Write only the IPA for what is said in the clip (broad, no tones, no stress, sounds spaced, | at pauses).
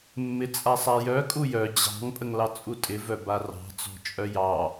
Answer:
mː ɪ t͡sʼ a sˤ a j œ kʼ u j œ d͡ʑ ɑ̤ ŋ pʼ ə ŋ l ɑ t͡sʼ u tʼ ɪ v œ b a r ɑ̤ t͡s ɔ̤ t͡ʃʼ œ j ɑ